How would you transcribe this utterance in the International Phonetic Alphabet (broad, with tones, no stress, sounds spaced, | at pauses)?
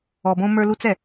ɔ˨ b õ˦ m ə˞˦ l u˦ t͡s ɛ˨